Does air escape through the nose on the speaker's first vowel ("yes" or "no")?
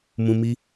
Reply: yes